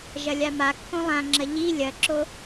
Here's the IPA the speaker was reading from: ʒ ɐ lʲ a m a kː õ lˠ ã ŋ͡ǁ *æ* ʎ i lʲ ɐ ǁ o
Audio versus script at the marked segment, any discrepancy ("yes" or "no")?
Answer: yes